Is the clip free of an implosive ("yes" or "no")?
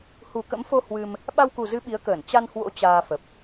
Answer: no